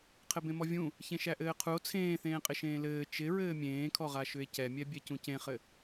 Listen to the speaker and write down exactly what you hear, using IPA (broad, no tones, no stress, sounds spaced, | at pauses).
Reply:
qʰ ɘ b ẽ m ɔ vʲ ũ | ç ẽ ʃ æ ʔ ɘː qʰ u o̯ t͡sʰ ẽː θ ẽː qʼ ɪ ʃ ẽː l ɘː t͡ʃ ɪ ɹ ɘː mʲ ẽː kʰ ɔ ʁ a ʃ ʏ e̯ c ɛ mʲ ɛ bʲ ɛ c ũ c ẽ χ ɘ